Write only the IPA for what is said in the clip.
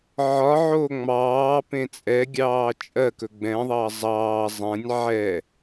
ʕɒʕo ŋ͡mɑːpẽ t͡sʼɛɡʲɑː t͡ʃʼɜkɵ ɡ͡bɛ̃ðˤɑ zˤɑː zˤɛ̃nʲ ʕɛ

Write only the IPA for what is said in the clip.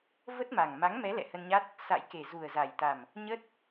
və˦˥t̚ma˨˩ŋ ma˨˦ŋmɛ˨˦ lɛ̰˧˨hə˧nɲa˦˥t̚ | sa̰˧˨jke˨˩ zu˨˩ə̯za˨˩jt̪a˨˩m | ɲə˦˥t̚

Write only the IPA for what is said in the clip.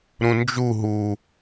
ɾũnd͡ʒu ɦu

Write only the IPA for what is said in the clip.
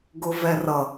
ɡʊvɛrʌ

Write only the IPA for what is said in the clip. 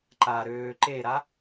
ǃa ɾøːǃeɾa

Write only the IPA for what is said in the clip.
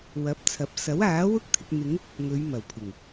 wɐ˨˥p̚t͡sʰɐ˨˥p̚ sɐ˨˥waː˨˥wʊ˥k̚ t̪ʰɪ˧k̚ n̪ɪ˨˧ŋ | ŋɵ˨˧ɥmɐ˨˩w pʰɪ˨˩ŋ

